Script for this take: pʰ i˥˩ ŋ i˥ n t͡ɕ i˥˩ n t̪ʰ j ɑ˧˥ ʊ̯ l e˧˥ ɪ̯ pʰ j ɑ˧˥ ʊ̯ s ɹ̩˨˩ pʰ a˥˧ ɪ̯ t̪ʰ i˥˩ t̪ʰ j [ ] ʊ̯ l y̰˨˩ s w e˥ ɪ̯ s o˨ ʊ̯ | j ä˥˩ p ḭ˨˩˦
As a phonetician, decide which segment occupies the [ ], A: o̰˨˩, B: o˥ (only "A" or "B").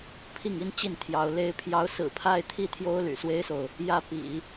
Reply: B